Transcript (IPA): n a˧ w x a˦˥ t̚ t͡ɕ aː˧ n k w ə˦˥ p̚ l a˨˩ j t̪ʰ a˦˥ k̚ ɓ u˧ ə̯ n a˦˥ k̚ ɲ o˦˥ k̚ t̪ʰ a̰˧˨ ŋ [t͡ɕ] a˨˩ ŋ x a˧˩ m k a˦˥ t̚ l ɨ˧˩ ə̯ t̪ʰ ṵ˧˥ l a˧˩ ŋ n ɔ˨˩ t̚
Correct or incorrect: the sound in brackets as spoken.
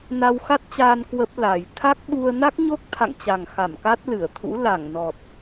correct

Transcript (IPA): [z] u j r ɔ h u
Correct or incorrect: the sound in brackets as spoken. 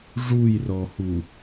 incorrect: ʐ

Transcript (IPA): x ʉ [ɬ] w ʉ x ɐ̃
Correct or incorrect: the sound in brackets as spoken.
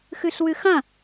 correct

